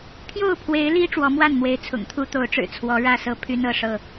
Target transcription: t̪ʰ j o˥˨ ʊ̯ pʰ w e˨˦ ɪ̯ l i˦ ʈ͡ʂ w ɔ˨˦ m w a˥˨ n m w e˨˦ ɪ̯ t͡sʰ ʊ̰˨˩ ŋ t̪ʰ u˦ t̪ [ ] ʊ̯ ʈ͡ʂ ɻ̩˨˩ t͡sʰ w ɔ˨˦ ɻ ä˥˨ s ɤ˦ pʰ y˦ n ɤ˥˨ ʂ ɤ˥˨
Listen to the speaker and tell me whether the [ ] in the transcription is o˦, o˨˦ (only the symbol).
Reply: o˨˦